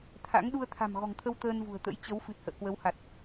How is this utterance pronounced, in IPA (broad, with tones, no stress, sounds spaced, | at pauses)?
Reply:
t̪ʰ a̰˧˥ ŋ ɗ u˧ ə̯ t̪ʰ a̤˨˩ m ɣ ɔ̤˨˩ ŋ t̪ʰ ə˧ w t̪ əː˧ n v ṳ˨˩ ə̯ t̪ ə̰˧˥ j t͡ɕ ə˨˦ w f ɨ˨˩ t̚ h ə̰ː˧˨ k w ə˨˦ w h a˨˩ t̚